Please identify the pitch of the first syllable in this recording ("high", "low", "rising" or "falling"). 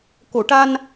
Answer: low